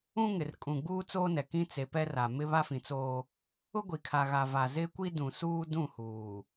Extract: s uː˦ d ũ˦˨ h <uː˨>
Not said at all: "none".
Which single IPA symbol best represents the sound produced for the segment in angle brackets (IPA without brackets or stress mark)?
uː˨